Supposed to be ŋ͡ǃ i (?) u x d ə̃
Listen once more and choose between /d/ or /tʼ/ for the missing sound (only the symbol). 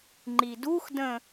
d